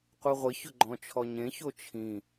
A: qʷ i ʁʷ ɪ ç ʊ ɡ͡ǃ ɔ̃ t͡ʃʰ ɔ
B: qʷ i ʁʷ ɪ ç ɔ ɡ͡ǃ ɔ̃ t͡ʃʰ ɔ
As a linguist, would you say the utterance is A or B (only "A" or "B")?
A